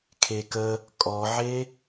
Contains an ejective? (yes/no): yes